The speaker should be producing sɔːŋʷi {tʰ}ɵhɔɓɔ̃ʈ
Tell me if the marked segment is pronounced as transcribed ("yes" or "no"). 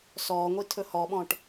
yes